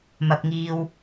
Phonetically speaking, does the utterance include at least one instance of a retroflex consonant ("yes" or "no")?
no